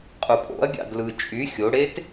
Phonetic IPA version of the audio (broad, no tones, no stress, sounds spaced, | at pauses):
qʼ u pʼ o̰ ɐ̯ ɡʲ ɑ̰ d l ɯ t͡ʃʼ y xʲ o ɽ e t